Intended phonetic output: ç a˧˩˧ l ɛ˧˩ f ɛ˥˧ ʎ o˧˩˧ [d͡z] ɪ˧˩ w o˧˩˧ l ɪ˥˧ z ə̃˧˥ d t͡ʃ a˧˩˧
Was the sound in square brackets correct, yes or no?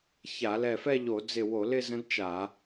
yes